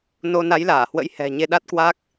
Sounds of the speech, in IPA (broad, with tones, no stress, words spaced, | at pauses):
no˧ na˨˦jlaː˧˩hwə̰˧˥j hɛ̤˨˩ɲe˧ɗa˦˥t̚ kwa˦˥k̚